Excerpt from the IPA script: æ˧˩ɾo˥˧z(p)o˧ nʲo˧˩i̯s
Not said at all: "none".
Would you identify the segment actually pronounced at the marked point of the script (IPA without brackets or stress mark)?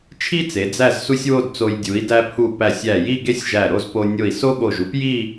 p